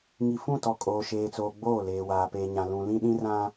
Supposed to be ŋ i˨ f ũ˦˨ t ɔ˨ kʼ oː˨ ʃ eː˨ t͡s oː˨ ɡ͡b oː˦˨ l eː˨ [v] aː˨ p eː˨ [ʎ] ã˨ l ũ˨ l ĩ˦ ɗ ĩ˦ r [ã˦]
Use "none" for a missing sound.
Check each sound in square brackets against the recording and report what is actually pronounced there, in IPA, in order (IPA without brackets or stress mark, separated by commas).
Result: w, ɲ, ã˦